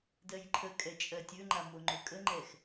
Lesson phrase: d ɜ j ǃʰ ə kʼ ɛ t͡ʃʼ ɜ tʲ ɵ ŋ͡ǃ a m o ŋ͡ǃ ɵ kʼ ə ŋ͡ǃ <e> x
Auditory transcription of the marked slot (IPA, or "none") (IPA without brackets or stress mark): ɛ